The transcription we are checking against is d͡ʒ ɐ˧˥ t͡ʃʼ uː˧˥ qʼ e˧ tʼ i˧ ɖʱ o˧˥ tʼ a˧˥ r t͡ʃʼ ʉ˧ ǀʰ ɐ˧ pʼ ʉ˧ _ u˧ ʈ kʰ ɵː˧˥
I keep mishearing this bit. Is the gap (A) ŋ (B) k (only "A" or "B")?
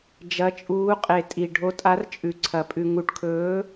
A